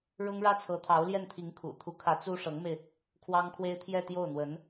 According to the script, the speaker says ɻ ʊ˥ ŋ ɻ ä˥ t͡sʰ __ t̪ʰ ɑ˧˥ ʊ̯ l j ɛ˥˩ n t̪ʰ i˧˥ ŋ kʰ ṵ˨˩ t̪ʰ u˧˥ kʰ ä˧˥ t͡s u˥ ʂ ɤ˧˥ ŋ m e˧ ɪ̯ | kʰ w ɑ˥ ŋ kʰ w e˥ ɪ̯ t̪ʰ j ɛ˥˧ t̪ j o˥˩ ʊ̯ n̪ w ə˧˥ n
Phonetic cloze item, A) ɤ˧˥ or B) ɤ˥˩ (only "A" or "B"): A